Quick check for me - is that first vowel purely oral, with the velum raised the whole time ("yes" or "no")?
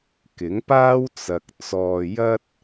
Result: yes